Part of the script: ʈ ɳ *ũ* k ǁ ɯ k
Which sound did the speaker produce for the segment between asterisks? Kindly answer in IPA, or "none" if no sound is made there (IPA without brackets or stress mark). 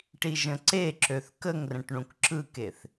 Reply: ũ